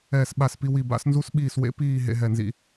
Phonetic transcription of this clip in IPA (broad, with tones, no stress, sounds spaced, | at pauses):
ɛː˦˨ s ɓ a˦˨ s p i˦ w i˦˨ b a̰˦ s n z u˦ s ɓ iː˦˨ s w ḛ˦ p iː˦˨ ɦ ḛ˦ ɦ ɛ˦˨ n z ḭ˦